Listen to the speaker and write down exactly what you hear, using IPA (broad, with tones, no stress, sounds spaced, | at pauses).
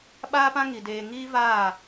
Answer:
ɓ aː˦ p ã˦ ŋ i˨ d eː˧ ŋ iː˦ v aː˦˨